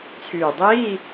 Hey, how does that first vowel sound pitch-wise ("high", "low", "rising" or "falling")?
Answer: low